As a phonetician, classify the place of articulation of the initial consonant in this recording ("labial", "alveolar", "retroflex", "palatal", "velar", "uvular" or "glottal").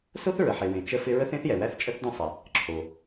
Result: alveolar